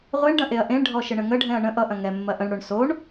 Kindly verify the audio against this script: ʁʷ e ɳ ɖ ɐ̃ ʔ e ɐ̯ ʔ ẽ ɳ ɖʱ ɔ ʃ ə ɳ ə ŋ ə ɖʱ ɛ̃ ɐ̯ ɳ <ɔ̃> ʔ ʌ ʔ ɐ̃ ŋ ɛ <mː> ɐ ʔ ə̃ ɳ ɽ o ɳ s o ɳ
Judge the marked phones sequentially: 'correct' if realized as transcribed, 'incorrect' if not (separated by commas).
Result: incorrect, correct